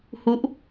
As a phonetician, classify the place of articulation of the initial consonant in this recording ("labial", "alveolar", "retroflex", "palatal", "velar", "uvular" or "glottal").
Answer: glottal